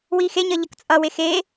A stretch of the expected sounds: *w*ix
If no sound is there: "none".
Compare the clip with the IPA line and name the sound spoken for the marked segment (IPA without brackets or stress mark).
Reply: w